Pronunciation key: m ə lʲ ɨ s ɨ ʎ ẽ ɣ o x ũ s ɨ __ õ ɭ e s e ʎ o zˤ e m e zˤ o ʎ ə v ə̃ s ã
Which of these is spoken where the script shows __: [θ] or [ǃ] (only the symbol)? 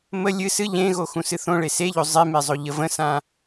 θ